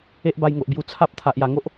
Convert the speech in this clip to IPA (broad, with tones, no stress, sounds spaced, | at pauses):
e˦ ʔ b a˧ j ŋ o˨ ʔ b j u˧ t͡sʰ a˦ p̚ t̪ʰ a˨ ʔ j a˨˩ ŋ o˦ ʔ